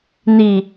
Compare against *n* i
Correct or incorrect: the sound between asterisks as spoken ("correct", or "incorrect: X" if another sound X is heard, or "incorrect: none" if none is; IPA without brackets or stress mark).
correct